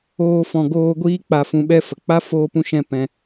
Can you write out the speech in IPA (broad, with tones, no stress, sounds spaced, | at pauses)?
oː˧ f ɔ̃˨ ɡ oː˧ ɡʷ iː˦ k͡p a˧ f ũ˧ ɓ ɛ˦ f ə˨ k͡p a˦ f oː˦ p ũ˦ ʃ ɛ̃˦ p ɛ̃˧